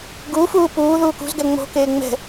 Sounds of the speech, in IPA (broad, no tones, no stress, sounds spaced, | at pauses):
ɡ u f uː p uː ð uː k ṳ z ɡ ɛ ŋ͡m o̤ k eː ŋ͡m ɛ̤